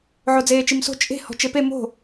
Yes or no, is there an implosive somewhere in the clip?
no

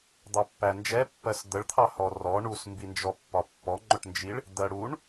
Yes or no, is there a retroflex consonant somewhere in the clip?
yes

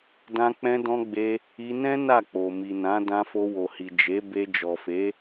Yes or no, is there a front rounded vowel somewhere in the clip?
no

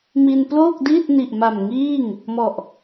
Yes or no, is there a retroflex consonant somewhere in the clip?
no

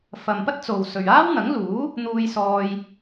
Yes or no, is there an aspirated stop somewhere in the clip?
no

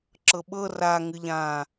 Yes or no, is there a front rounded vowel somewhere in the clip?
no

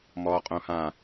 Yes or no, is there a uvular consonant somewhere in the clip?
yes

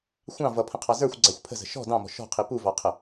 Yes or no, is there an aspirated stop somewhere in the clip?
yes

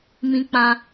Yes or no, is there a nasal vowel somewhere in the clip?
yes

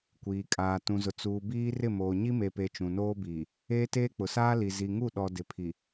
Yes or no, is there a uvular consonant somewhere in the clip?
no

